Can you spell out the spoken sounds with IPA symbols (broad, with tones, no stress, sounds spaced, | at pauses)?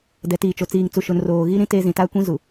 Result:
d ɛ˨ t iː˨ t͡ʃ o˨ t͡s iː˨ ŋ t͡s u˨ ʃ ʊ˨ n r oː˨ ɣ i˦ ɾ ĩ˦ t e˦ z ĩ˨ t a˦ kʷ ĩ˦ z u˨